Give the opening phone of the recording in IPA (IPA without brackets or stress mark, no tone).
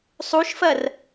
sˤ